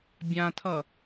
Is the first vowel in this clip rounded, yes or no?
no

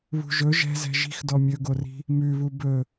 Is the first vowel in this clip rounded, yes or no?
yes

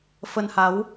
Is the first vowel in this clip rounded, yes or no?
no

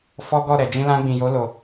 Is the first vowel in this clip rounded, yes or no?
yes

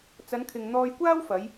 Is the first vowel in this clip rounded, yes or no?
no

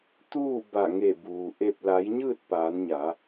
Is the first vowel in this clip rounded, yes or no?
yes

